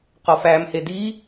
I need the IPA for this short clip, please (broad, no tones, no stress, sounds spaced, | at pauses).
q ɒ f æ m h e d i